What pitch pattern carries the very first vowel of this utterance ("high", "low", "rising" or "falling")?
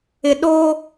low